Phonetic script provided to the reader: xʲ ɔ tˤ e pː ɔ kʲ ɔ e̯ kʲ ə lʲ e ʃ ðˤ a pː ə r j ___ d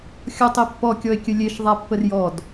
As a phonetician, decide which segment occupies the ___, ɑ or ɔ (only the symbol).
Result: ɔ